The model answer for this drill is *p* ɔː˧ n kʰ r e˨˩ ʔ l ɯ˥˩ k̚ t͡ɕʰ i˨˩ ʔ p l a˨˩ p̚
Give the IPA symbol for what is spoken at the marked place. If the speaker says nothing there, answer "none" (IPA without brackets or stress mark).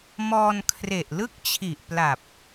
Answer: m